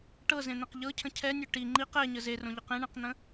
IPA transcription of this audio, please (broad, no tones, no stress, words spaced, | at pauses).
ʈɤzẽn̪ẽq ʎɤcʰə̃ cʰɛnʲø ʈi ŋ͡ǃiq ɛɲə zerõʎɯq ẽɳɛ̃qn̪ə̃